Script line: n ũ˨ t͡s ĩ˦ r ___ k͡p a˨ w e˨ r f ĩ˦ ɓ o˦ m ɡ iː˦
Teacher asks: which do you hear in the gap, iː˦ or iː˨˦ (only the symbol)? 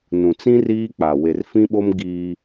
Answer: iː˦